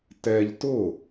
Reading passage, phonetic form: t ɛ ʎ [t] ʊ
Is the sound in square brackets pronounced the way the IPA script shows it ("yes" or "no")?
yes